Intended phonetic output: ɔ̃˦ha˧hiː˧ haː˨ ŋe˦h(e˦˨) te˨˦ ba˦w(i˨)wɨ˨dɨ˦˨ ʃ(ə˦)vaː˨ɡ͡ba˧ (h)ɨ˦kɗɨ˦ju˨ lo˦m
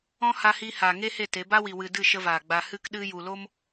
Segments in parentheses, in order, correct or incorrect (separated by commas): correct, correct, correct, correct